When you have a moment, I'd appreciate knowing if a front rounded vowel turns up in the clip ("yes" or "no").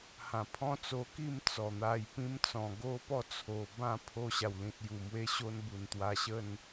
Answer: no